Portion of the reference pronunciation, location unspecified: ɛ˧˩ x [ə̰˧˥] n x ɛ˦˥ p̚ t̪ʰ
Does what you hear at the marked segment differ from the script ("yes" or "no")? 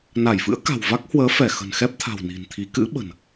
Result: yes